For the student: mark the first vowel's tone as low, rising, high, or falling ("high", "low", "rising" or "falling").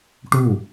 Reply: falling